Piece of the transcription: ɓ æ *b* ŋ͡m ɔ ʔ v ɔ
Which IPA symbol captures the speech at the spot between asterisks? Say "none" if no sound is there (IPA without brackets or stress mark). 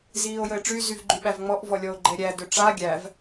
v